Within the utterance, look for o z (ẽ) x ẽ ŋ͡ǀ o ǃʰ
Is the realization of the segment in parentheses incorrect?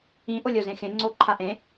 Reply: no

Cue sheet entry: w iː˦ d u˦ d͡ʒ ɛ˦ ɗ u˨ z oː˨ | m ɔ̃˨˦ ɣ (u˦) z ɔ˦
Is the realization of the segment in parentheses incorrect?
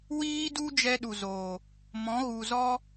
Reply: yes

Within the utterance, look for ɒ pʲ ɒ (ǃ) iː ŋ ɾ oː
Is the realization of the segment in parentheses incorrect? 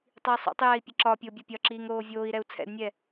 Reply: yes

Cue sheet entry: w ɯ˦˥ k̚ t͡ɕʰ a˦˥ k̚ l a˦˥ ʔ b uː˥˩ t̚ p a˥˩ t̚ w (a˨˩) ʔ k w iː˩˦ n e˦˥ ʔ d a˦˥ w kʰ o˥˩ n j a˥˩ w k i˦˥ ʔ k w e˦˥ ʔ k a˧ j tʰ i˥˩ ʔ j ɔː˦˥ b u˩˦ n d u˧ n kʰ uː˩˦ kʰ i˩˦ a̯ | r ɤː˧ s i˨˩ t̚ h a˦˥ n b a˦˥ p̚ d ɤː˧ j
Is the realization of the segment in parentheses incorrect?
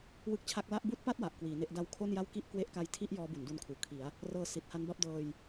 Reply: no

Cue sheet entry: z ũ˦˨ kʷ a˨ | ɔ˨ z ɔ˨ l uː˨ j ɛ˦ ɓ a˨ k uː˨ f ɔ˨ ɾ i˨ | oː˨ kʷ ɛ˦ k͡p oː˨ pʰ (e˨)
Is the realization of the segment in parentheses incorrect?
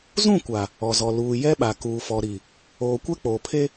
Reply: yes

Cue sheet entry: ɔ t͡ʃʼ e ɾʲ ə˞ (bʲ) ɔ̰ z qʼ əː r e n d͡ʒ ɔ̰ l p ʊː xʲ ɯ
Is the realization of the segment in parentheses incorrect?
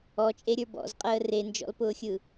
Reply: yes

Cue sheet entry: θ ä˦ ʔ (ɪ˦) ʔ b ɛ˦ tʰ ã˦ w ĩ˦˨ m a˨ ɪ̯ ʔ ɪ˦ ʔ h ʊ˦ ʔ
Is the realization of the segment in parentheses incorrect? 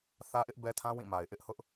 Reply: no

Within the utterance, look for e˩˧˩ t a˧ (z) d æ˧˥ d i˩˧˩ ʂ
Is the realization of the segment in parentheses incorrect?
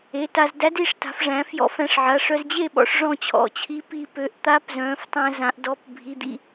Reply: no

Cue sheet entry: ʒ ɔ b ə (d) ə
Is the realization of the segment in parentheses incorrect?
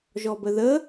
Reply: yes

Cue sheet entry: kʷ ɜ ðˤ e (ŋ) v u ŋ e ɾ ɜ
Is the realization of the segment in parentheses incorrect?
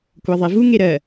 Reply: yes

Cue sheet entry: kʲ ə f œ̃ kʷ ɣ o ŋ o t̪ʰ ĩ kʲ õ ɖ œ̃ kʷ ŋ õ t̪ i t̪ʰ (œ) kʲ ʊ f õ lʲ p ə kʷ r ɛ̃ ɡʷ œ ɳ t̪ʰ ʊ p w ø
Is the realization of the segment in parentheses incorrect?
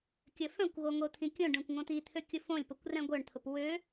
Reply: yes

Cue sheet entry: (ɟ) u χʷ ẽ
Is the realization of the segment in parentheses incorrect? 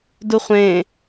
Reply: yes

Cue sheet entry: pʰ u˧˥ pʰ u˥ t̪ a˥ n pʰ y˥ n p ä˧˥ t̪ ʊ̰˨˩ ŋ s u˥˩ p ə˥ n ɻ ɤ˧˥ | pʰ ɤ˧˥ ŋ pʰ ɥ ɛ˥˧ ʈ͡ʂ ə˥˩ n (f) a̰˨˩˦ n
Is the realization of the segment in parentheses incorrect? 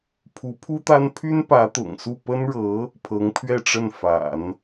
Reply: no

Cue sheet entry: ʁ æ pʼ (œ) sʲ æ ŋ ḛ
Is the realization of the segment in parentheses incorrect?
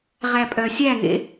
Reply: no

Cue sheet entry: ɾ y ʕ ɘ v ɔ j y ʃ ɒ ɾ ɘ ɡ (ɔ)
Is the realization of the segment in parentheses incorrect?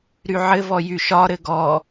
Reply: no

